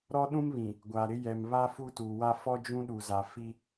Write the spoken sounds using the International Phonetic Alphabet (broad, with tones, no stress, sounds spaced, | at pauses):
ɾ ɔ˦ ɗ ũ˦ m β ĩ˨ | ɡʷ a˨ ɾ ɪ˦ j ɛ˨ m β a˦ f u˦ t uː˨ w a˦ f ɔ˦ d͡ʒ ũ˦ ɗ u˨ z a˨ f i˦